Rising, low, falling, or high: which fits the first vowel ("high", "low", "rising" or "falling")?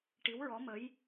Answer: rising